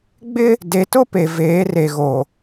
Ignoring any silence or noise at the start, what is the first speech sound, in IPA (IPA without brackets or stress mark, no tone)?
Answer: ɡ͡b